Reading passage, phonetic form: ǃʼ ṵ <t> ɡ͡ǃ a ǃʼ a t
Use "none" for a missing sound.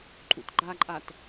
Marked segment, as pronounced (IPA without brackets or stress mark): t